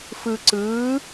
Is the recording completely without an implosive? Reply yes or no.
yes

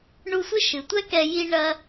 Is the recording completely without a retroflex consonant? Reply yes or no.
no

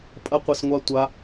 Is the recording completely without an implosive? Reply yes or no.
yes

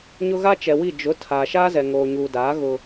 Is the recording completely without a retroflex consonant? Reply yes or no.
yes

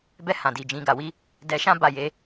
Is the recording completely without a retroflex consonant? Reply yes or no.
yes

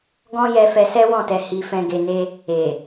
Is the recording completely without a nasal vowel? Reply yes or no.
no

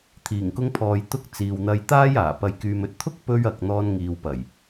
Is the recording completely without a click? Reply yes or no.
yes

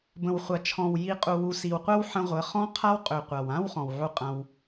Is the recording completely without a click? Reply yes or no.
yes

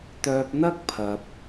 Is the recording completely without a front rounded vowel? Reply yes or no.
no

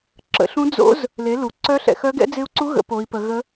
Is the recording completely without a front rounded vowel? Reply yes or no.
no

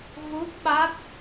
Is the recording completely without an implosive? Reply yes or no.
no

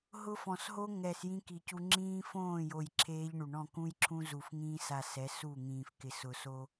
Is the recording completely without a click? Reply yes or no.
no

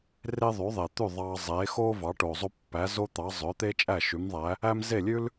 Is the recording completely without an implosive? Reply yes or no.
yes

